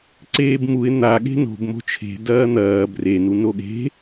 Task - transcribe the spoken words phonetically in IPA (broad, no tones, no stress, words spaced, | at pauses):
ǀeːbmuɪ̯ n̪a ɠe̤no̤b mo̤t͡ʃʰe̤ dɐːn̪ɐː bren unoɠe̤